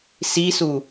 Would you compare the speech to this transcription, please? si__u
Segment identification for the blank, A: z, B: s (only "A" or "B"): B